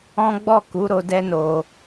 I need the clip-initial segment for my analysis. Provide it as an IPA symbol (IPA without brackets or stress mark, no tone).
ɔ̃